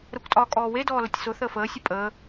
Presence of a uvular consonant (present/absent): absent